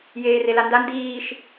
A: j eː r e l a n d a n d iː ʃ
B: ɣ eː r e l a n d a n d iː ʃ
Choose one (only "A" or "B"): A